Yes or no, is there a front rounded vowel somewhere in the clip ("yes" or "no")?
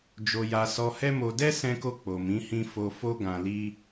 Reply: no